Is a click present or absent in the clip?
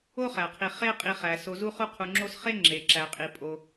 present